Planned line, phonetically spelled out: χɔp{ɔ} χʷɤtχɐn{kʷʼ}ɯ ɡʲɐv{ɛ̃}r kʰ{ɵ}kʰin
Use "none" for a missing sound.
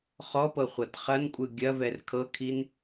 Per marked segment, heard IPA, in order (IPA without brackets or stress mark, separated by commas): ɤ, kʷʼ, ɛ, ɤ